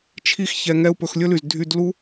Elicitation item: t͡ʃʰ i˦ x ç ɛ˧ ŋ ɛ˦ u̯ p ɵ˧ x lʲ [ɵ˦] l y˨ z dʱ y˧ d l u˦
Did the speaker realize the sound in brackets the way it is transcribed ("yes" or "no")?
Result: yes